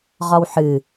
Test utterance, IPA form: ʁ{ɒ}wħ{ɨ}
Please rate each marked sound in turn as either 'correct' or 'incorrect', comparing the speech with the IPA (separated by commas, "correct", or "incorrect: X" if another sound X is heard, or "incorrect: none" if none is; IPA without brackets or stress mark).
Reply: correct, correct